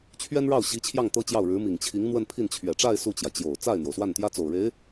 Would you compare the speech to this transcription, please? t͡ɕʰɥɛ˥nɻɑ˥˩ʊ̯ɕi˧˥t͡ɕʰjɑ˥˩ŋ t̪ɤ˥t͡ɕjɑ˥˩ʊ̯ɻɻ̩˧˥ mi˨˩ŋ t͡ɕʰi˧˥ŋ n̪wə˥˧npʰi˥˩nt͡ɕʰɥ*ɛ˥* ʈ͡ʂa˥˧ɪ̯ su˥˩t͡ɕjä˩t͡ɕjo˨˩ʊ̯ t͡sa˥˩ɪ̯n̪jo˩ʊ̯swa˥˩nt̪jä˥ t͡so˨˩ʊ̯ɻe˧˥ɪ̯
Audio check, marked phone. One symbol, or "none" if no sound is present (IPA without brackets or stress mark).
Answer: ɛ˨˩